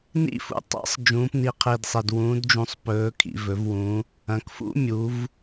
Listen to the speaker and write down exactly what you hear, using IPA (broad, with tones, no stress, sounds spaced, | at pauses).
n ḭ˦˥ f ṵ˨˩ tˤ a̰˦˥ sˤ d͡ʒ ũː˩˧ p n i˨˩ qʰ i˨˩ d sˤ e˨˩ d w ũː˩˧ d d͡ʒ ũ˨˩ sˤ p ɵː˩˧ kʰ ḭ˨˩ v ɵ˩˧ v w ũ˩˧ | ɐ̃˩˧ k f ṵ˦˥ mʲ u˩˧ v